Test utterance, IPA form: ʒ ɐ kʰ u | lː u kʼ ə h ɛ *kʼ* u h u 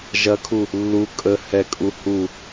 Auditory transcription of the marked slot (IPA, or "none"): kʼ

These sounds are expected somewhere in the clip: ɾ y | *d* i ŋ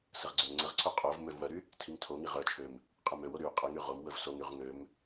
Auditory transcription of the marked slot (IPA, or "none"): tʰ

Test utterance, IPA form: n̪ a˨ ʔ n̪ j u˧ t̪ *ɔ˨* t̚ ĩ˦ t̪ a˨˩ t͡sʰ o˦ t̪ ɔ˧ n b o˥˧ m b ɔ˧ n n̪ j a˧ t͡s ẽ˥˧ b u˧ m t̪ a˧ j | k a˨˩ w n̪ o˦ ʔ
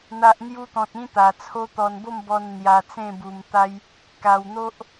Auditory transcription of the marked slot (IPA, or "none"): ɔ̃˨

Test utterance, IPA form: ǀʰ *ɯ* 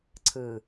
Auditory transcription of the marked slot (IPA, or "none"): ɯ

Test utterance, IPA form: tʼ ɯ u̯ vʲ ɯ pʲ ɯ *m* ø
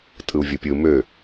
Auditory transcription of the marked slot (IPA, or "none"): m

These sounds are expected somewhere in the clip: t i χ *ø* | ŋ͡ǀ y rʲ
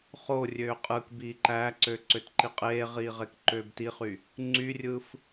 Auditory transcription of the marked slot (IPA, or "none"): y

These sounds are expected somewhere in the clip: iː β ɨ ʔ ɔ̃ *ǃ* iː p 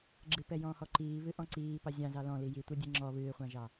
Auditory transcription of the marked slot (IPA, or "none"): ǀ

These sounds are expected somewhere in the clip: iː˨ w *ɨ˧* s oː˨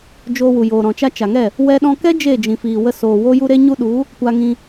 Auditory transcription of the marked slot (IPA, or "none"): ə˧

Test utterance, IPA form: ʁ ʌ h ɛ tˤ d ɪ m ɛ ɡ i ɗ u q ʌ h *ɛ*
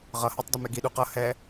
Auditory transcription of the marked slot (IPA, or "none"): ɛ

